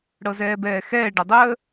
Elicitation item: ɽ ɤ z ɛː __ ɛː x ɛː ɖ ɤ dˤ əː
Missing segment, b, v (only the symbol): b